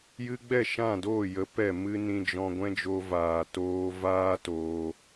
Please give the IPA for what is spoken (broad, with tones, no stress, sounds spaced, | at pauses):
j ɨ˧ ɡ͡b ɛ˦˨ ʃ ã˦˨ d oː˦˨ j ə˨˦ p ɛ˦˨ m ɨ˦ n ĩ˧ d͡ʒ ɔ̃˧ ɡʷ ɛ̃˦ d͡ʒ o˧ v aː˨ t oː˧ v aː˦ t oː˧